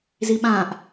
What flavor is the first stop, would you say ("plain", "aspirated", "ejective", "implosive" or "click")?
implosive